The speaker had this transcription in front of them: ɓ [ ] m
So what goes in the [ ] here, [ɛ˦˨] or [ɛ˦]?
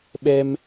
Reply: ɛ˦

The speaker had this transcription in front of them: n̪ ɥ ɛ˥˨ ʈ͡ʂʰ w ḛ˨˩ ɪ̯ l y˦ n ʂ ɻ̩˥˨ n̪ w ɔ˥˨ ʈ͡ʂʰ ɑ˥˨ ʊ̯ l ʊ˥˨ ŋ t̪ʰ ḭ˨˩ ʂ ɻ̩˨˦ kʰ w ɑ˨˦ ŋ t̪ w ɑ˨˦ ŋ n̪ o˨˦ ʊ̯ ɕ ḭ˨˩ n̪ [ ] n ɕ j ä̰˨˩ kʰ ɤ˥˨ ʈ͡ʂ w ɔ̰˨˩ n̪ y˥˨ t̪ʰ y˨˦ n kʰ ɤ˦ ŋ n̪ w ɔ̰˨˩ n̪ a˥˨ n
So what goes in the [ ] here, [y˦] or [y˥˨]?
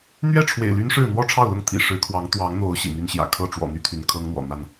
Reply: y˦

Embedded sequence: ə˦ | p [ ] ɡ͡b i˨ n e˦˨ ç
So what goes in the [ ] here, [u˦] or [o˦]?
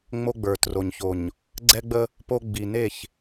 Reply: o˦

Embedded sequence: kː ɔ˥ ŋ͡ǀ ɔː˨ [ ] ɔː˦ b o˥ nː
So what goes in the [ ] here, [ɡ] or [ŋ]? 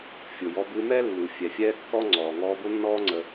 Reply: ŋ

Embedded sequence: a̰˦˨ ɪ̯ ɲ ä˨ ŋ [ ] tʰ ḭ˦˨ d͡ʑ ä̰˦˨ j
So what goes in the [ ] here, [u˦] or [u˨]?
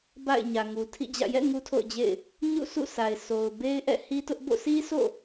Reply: u˨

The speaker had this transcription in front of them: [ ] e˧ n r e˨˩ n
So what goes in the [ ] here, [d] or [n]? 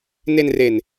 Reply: n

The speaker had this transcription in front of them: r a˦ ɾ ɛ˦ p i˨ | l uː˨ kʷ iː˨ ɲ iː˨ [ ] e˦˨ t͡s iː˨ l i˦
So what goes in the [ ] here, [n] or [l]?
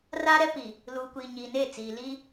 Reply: n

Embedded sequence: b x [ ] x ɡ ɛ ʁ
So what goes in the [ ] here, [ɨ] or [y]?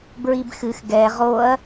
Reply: ɨ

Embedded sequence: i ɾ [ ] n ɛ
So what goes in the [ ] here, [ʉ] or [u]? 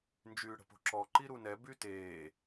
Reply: u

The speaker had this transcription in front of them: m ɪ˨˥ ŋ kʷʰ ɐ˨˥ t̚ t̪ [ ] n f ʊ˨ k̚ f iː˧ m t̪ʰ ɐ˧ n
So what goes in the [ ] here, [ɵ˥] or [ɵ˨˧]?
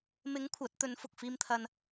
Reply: ɵ˨˧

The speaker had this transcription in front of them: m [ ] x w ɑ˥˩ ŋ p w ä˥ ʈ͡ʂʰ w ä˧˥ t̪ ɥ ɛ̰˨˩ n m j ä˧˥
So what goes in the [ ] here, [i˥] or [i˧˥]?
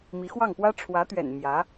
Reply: i˧˥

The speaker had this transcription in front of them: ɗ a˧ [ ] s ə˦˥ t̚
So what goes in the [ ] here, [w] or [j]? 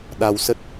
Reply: w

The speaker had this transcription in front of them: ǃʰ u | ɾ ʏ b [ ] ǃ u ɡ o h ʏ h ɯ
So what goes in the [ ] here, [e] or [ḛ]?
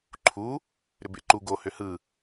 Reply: ḛ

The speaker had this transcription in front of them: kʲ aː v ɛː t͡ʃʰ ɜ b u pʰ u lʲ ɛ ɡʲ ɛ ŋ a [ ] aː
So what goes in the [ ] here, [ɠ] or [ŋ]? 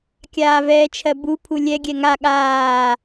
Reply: ɠ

